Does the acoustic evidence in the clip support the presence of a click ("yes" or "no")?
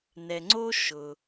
yes